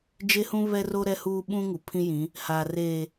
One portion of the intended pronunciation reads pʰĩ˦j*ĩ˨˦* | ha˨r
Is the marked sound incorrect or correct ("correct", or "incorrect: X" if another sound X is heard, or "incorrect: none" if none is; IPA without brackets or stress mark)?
correct